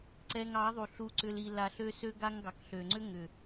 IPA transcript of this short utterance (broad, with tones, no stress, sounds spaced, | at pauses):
ǀ ɛ˧ ŋ ɑ˨˦ ðˤ u˨ ɬ u˧ ǀ ʏ˧ l i˧ l a˧ ɬ ø˦ s ø˦ ɡ a˦ ŋ ɡ ɑ˨ k ɬ ø˨ ŋ͡ǀ ʏ˦ ŋ ʏ˨